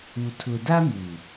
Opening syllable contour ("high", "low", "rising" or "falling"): low